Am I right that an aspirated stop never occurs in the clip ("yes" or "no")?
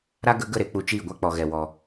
yes